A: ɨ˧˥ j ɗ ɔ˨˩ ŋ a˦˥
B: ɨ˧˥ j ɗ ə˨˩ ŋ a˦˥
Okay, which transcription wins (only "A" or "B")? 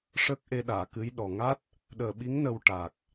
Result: A